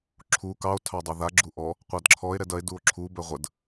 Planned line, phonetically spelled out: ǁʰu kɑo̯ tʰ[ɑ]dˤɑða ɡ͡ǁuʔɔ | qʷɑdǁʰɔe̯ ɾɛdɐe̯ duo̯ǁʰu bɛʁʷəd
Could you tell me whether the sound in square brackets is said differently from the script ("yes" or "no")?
no